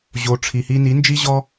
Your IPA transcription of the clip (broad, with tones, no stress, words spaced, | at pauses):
ʑo˨ʈ͡ʂʰi˨hi˧ni˨˦ nd͡ʒi˦ʑɔ˦